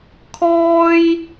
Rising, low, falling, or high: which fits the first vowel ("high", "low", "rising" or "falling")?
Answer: high